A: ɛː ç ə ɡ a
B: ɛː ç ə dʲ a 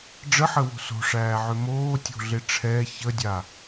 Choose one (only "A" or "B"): B